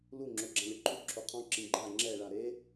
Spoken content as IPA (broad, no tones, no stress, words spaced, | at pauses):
lu ŋ͡ǁoɡ͡ǁãlʲɤǃʰu ǁʰoqʰɔ̃ ǁĩɡ͡ǃa ŋ͡ǁɛ ɭaɾe